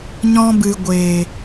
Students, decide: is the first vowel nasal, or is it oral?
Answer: nasal